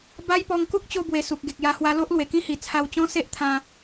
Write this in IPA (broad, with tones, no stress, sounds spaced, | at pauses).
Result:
b a˦ j p ɔ˧ ŋ k u˦ k̚ t͡ɕ o˧ b w e˨˩ s u˨ k̚ ɡ e˨ k̚ j a˧ h w a˧ l o˦ ʔ l w e˨˩ k ĩ˦ h i˨˩ t͡sʰ a˧ w t͡ɕ ɔ̃˦ s e˦ ʔ t̪ʰ ã˧